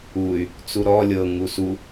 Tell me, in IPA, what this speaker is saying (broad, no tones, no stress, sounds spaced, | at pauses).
u y̯ | t͡s u ɾ ɔ lʲ ɤ ŋ u s u